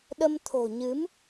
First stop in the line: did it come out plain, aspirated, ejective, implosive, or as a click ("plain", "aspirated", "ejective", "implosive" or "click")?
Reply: implosive